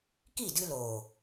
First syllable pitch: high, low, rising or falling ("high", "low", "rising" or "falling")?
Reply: falling